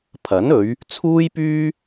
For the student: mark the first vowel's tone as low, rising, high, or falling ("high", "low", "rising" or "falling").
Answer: rising